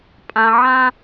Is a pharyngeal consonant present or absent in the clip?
present